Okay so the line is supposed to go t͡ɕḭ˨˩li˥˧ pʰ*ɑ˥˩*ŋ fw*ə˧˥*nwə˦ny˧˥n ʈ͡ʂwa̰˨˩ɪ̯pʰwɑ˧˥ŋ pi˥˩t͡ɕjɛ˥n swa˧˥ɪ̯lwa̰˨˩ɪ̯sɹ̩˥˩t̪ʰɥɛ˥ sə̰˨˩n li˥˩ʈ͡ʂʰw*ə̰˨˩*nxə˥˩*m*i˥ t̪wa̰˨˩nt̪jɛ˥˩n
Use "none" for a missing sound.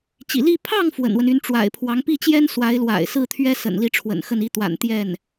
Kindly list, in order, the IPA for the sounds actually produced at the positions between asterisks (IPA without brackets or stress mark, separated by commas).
ɑ˥˩, ə̰˨˩, ə̰˨˩, n